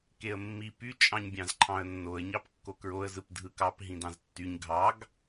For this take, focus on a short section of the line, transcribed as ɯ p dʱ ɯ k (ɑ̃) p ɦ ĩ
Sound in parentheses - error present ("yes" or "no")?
yes